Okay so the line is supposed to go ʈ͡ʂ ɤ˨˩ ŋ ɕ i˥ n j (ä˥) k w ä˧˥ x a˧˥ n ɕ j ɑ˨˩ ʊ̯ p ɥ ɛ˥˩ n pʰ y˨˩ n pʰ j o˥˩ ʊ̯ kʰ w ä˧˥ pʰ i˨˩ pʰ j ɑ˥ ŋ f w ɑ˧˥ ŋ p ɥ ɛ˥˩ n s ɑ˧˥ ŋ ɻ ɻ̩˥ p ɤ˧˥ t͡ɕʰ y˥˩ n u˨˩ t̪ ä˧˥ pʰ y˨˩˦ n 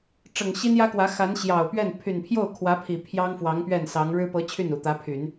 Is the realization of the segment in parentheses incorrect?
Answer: no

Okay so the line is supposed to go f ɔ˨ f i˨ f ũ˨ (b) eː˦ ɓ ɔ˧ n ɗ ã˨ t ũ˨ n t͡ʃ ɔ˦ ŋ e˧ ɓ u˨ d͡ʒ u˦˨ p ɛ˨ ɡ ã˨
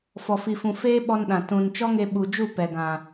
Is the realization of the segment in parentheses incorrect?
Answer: yes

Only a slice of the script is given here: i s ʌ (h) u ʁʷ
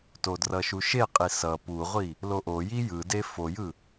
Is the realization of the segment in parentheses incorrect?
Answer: yes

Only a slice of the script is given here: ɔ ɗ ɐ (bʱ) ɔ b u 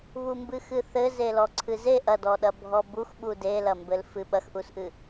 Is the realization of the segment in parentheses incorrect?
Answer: no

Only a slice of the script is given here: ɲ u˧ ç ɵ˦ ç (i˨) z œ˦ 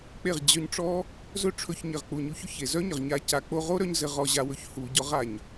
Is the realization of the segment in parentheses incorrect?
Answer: yes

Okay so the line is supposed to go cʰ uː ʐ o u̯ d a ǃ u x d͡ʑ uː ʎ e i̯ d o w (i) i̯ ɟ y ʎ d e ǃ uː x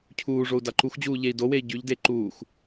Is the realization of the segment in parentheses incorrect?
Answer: yes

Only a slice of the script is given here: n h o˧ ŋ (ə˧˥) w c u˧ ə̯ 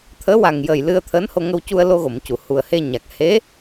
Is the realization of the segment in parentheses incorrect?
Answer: yes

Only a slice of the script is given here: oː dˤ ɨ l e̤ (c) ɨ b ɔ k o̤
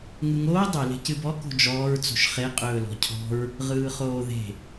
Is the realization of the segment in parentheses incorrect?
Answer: no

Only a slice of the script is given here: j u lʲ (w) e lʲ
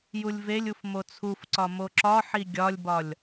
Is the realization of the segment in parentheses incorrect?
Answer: yes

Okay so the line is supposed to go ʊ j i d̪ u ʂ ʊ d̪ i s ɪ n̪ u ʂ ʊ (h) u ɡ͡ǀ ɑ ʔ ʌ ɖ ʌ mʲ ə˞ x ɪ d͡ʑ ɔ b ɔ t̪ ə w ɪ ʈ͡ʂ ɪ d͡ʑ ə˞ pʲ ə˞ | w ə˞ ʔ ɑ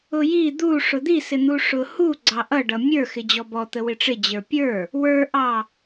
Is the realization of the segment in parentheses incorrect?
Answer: no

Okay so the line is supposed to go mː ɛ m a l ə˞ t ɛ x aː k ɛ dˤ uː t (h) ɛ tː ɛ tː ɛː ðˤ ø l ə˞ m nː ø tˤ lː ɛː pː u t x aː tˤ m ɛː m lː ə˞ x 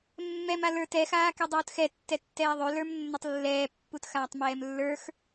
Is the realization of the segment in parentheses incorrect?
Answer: yes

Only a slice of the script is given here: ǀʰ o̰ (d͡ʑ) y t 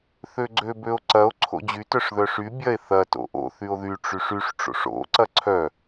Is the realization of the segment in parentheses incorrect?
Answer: no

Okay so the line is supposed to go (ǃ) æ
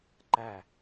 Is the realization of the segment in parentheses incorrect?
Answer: no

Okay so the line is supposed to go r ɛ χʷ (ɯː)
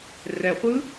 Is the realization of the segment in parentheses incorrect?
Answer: yes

